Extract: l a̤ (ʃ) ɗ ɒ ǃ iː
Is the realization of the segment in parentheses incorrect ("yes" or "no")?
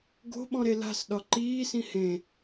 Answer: yes